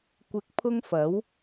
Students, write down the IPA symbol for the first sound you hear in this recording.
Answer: kʷ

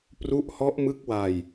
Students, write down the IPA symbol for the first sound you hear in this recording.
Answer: p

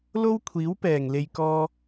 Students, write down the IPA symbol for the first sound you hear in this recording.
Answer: l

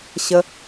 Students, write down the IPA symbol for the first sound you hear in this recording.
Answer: ɕ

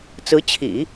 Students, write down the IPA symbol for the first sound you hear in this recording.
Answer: t͡s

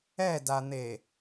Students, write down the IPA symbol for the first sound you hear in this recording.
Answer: ɛ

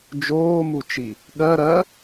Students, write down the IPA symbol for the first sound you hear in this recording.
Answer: d͡ʒ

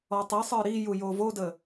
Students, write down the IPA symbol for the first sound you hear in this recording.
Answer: ɔ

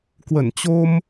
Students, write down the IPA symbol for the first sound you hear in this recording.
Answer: k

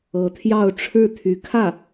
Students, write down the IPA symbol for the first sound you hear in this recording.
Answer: ɤ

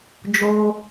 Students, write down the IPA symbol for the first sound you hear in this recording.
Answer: d͡ʒ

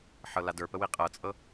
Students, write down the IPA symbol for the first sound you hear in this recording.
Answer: ħ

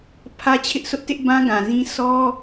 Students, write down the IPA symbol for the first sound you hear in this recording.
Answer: pʰ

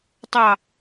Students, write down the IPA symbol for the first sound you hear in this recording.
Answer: tˤ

